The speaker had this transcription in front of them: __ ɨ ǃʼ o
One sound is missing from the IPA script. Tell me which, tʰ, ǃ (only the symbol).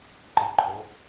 ǃ